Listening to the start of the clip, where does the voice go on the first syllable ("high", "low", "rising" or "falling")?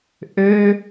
high